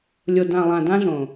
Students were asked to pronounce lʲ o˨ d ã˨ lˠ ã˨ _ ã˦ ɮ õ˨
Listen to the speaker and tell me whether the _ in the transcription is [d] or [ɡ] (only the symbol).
d